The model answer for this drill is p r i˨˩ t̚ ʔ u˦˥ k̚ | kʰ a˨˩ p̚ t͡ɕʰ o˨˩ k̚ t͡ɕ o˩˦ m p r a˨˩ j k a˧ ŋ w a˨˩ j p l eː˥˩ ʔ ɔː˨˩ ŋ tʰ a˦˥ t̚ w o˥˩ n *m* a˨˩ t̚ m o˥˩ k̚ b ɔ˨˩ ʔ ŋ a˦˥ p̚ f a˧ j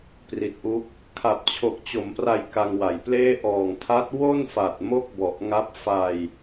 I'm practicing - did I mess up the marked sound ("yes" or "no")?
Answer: yes